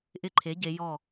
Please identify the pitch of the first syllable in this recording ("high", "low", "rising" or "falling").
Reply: falling